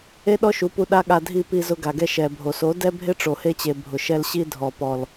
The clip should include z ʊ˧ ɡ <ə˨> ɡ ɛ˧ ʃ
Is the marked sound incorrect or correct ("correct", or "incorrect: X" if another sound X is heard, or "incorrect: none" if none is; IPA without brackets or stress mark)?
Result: incorrect: a˨